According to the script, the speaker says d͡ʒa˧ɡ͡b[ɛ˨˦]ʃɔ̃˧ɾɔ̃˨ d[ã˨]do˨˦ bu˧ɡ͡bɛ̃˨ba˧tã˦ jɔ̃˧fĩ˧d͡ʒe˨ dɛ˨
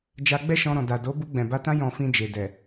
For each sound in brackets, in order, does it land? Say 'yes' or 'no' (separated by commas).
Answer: no, no